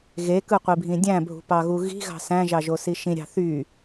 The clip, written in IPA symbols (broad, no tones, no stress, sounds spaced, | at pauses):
ɣ e k ɯ qʷ i bʱ ĩ dʲ æ̃ bʱ ṳ p ɑ ɣ u ɣ i̤ ɣ ɑ̤ s æ̃ ʒ ɑ ʒ o s i ʃ ĩ ɾʲ ɑ̤ θ y